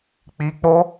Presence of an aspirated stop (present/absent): absent